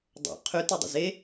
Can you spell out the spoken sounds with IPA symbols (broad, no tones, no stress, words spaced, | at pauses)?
dˤo̰ qʰytidˤə̰ ze